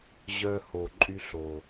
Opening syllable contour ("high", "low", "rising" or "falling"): high